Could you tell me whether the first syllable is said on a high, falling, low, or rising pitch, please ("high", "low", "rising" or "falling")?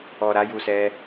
low